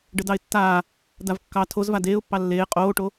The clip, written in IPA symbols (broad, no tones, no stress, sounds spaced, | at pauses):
ɖ ə d ɑ ɪ̯ tː aː | d a v kː ɑ tʰ o z v a d eː ʊ̯ pː ɑ lː eː qʼ oː ʈ o